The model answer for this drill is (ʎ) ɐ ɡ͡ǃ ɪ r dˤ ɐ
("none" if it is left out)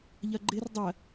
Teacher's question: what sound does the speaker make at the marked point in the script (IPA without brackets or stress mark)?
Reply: ʎ